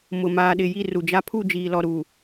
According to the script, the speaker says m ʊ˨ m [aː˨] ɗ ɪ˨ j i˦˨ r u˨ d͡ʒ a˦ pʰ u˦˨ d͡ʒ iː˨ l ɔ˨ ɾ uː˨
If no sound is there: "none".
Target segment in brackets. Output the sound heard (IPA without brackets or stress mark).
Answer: aː˨